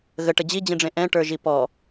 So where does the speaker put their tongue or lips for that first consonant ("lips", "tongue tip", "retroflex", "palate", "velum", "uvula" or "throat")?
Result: velum